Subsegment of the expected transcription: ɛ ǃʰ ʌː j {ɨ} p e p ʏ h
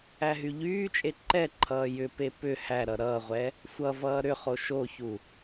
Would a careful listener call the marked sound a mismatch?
yes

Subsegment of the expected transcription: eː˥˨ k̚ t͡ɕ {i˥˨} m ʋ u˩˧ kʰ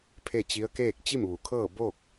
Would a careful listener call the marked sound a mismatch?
no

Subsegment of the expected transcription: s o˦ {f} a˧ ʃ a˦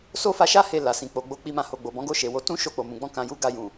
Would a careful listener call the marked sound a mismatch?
no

